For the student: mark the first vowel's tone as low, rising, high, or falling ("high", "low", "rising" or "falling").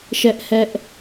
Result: high